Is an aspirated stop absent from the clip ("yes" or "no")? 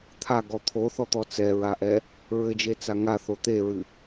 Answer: no